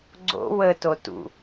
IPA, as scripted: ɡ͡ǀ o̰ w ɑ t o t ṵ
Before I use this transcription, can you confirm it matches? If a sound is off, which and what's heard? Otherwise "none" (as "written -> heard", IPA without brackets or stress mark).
ɑ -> ə